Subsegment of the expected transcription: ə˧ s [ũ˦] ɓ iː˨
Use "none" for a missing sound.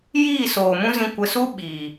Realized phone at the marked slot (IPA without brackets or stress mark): u˦